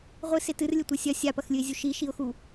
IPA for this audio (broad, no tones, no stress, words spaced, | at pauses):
ʁʷɨse tɨrlʲɘtʷɛ sʲɐ sʲapɐxlʲɨɪ̯zʲu ʃiʃiʊ̯xu